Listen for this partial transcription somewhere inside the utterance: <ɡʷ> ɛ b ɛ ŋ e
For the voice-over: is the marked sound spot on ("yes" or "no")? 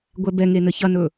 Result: yes